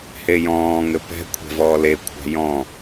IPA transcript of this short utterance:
h e j ɔ̃ː ŋ ɘ p ɛ̤ kʷʰ ɛ̤ v ɔː l e kʷʰ a̤ j ɔ̃

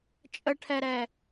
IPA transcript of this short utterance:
t͡ʃʼ ə ʈʰ ɛ ɾ ɛ

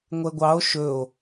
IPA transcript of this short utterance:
ŋʷ ɛ ɡʷ ɑ o̯ ʃ ɵ o̯

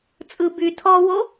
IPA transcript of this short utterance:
t͡sʼ ɯ b y tʰ ɔ w o

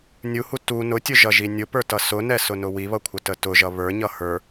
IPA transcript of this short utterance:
nʲ u h u t u n ʊ tʲ ʊ ʒ ʌ ʒ i nʲ ʊ p ə˞ t ʌ s ʊ n ɛ s ʊ n ʊ w i β ʌ kʷʰ ə t ə t ʊ ʒ ʌ β ə˞ ɲ ʌ h ə˞

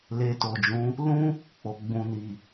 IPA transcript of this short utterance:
l e˧ t o˨ d͡ʒ ũ˨˦ | l ũ˦ | k͡p o˨ ɡ͡b ũ˨ n i˨

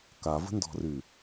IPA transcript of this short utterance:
k a v ə̤ n d ɔ̤ r y

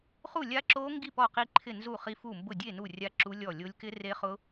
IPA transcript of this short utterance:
χ u˥˨ lʲ a˦˥ ǁ o˦˥ ŋ ɡ i˥˨ p ɔ˥˨ q i˦˥ ǃʰ ɪ˥˨ n z u˥˨ χ i˦˥ f u˥˨ m b ʊ˥˨ dʲ e˥˨ n u˥˨ rʲ a˦˥ ǁ u˦˥ lʲ ɔ˥˨ lʲ o˦˥ lʲ k ɪ˦˥ r e˦˥ χ ʊ˦˥

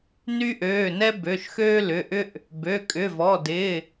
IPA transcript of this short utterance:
n y˦ ʔ øː˩˧˩ n ɛ˦ b ø˩˧˩ ʃ x øː˦ l ʏ˩˧˩ ʔ ʏ˦ ʔ | b ø˩˧˩ kʼ ʏ˩˧˩ v ɔ˩˧˩ d ɪː˩˧˩

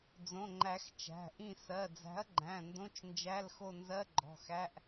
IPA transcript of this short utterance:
d͡z õ˩˧˩ ŋ͡ǃ æ˨˩˦ x t͡ʃ æ̤˩˧˩ ʔ ĩ˦˨ s ɜ˩˧˩ d͡z æ̤˨˥ ɐ̯ ɡ͡ǃ æ̃˩˧˩ n d õ˧˥˧ t͡ʃ n d͡ʒ æ˧˥˧ l x o˦˨ n z ɜ˧˥˧ ɡ͡ǃ ɔ̤˩˧˩ x æ˧˥˧ ʔ

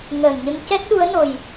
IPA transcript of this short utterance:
ŋ əː˨˩ n ɲ ə˧ ŋ c ɛ˦˥ t̚ ɗ u˧˥ ə̯ n o˨˩ j

